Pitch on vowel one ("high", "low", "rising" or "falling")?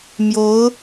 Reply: rising